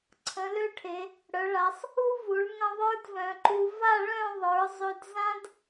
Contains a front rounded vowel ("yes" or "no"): yes